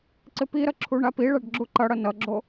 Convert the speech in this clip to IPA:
ǀɪpiɾʌ ǁʰuɳapiɭaɖ ɡ͡ǁuǃʌɽʌ nʌɡ͡ǁo

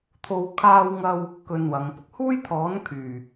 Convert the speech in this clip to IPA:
t̪ʰo˨wkʰaː˧wŋɐ˧w | kɵ˧nwɐ˨˧ŋpʊ˨k̚ huː˥jt̪ʰɔː˨˥nkʰyː˨˩

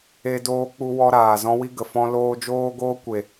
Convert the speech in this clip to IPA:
e˦doː˦k͡pu˦wɔ˦ ɾaː˨zɔ̃˦wi˦ ɡə˨fɔ̃˦loː˦ d͡ʒoː˦ɡoː˦kʷe˨

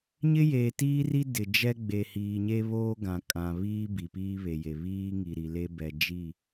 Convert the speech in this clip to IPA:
ɲɪ˦jeː˨tiː˦ri˦ dɪ˨d͡ʒɛ˦ɡ͡be˨ hiː˨ɲe˦βoː˦ ɡã˨kʼã˨βiː˦ bi˨piː˦βe˨je˨ βiː˦ ŋi˨ɾi˨le˦ bɛ˨d͡ʒi˦˨

